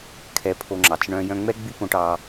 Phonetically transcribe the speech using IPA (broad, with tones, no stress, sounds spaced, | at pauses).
kʰ ɛ˧ pʰ o˧ ŋ͡ǁ ɑ˨ t͡s ɳ œ̃˧ j œ̃˧ ŋ͡m ɛ˦ ɡ͡b y˦ p õ˧ ʈ ɑ˧